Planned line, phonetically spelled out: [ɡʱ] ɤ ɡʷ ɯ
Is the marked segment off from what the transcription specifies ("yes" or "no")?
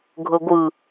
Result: no